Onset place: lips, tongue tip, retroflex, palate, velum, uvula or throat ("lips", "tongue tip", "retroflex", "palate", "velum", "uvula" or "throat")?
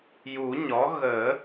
palate